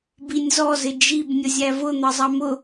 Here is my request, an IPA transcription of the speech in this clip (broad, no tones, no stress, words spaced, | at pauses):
binʲzɔzɪ d͡ʒib nʲʊzʲævʊn̪ʌ zˤɑmʊ